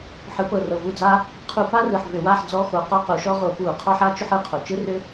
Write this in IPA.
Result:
ħ ɯ˩˥ p ɤ˨˩ r ɤ˨˩ v u˥˨ d͡z aː˥ | qʰ u˧˩˧ p aː˥ r ɯ˨˩ ħ v ʏ˧˩˧ w aː˥˨ ħ d͡z ɔ˧˥˧ x o˧˩˧ q ɔ˥ q u˩˥ ʃ ɔ˥ ʁ o˧˩˧ p uː˧˩˧ qʰ ɔ˧˥˧ ħ a˥ t͡ʃ ʏ˥ ħ ɯ˧˩˧ qʰ o˨˩ t͡ʃ ɯ˥ r ʏː˥

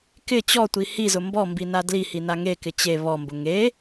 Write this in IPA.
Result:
k ɪ t͡ɕ ɔ tʷ i h i z ʊ m b ɔ m b i n a d l i h i n a ŋ e k ɪ t͡ɕ e β ɔ m b ʊ ŋ e

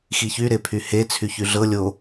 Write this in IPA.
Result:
x i ç y ɾ e pʰ y h e t͡sʰ y ç y ɮ ɤ lʲ o

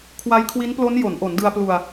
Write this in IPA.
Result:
kʰ w a˦˥ j kʰ w i˦˥ n p l o˦˥ n j o˩˦ n ʔ o˩˦ n d ɯ˧ a̯ p l u˧ a̯

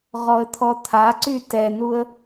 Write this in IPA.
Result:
ʁ ɔ ə̯ t̪ʰ ɔ t̪ʰ a ǀ y t ɛ n u ə̯

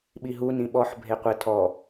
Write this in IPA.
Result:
ɓ i ɦ u n ĩ ɓ ɔ ħ bʱ e qʷ ɘ tʰ ɔ

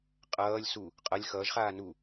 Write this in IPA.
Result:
qʼ ʌː lʲ s u | qʼ ʌ lʲ x ʌː ʒ χ aː n u

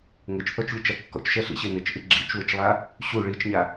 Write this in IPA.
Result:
ŋ ɘ t͡ʃ θ ɔ t͡ʃ lʲ u t͡ʃ a kː ɔ̰ t͡ʃ ʃ ɛ ɬ ḭ ɕ e n ɘ t͡ʃ ʔ ɨ ɡ͡ǁ ḭ t͡ʃ w ɘ t͡ʃ lˠ a | ɕ u ɭ i t͡ʃ ɲ a

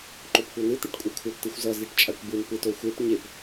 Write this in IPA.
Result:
ǃ o p kʷ ʌ n ɯ t̪ i ʈ kʷʼ ɛ kʷʰ ʌ p t ɯ xʷ z ʌ z i ʈ t͡ʃʼ a kʷ b ɯ n p ɯ t o xʷ e p ɲ e p

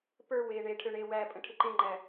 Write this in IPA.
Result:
p ə˞ w eː ɳ e ʈʰ ø ɳ e w æ pʼ ə̃ ʈʰ ɪ ǃ ẽ ŋ͡ǃ æ

